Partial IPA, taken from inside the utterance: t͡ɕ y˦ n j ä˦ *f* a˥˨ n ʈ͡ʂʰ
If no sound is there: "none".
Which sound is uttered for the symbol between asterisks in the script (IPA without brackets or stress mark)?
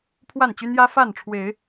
f